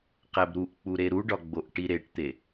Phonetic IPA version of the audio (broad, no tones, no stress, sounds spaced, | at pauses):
q æ b ɾ u ʔ k͡p u ɾ e ɾ u ɖ ɒ ɡ͡b o ʔ ʈ i ɾ e ʈ t̪ e